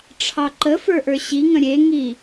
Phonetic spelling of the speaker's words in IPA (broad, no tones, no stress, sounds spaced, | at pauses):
ʈ͡ʂʰ ɑ ǃ ə f ə˞ ʔ ə˞ ɕ i ŋ ə̃ ɾʲ e ŋ i